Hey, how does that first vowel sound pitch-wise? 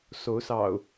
rising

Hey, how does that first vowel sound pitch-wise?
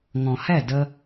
low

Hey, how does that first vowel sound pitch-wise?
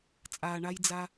low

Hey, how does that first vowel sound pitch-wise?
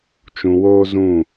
low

